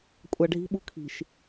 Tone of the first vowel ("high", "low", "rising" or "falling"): low